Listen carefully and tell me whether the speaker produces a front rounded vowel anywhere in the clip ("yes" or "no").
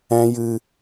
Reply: no